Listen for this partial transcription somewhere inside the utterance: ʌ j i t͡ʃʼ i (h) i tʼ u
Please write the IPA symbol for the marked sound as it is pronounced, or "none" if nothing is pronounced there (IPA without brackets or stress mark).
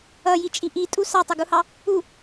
ʔ